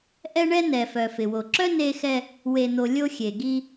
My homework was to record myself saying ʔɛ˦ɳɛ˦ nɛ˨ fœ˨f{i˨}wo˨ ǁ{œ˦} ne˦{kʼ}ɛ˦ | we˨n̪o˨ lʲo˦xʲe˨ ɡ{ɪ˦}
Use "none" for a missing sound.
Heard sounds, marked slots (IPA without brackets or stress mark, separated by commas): ɪ˨, œ˦, x, i˦